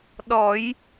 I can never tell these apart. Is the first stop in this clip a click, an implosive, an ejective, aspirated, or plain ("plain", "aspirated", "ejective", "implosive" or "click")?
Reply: implosive